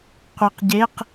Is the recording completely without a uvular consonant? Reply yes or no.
no